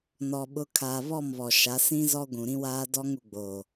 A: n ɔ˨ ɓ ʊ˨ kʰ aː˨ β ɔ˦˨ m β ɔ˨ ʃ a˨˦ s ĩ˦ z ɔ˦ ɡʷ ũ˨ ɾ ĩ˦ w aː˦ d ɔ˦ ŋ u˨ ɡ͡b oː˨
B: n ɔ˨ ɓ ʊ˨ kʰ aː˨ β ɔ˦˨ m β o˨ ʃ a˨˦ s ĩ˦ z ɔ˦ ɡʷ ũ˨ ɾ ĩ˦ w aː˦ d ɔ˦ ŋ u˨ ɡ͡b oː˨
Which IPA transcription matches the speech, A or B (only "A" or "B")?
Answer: A